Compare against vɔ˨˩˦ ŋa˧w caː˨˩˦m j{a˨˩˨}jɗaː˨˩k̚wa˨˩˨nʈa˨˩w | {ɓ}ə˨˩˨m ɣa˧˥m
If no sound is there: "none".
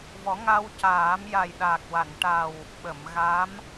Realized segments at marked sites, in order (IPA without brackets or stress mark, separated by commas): a˨˩, ɓ